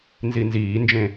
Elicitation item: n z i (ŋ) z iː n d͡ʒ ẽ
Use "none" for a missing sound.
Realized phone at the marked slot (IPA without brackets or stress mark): n